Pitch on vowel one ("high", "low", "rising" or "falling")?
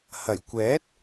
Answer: low